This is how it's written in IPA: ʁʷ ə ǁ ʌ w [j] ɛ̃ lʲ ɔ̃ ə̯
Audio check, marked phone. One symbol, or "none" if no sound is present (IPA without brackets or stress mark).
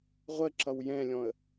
j